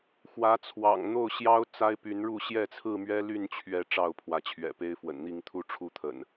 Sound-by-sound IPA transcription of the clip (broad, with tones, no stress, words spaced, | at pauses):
xwä˨˦t͡sʰwɑ̰˨˩ŋ n̪o˥˨ʊ̯ɕjɑ˦ʊ̯ t͡sa˦ɪ̯py˨˦nɻu˥˨ ɕjɛ˥˨t͡sʰɹ̩˥˨mɥɛ˦ ly˥˨nt͡ɕʰɥɛ˨˦ ʈ͡ʂɑ˥˨ʊ̯pʰwä˨˦t͡ɕʰɥɛ̰˨˩pe˦ɪ̯ fwə̰˨˩nn̪i˥˨ŋt̪ʰu˦ ʈ͡ʂʰu˥˨t̪ʰə̰˨˩n